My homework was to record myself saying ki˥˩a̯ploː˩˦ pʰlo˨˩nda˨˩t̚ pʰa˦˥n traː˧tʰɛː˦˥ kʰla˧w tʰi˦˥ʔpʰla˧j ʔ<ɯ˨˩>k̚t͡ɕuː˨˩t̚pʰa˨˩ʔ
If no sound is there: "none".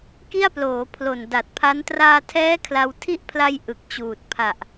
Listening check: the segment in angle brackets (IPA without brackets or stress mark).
ɯ˨˩